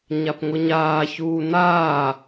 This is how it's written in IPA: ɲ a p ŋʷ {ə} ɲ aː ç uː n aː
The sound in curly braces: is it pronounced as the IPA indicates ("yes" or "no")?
no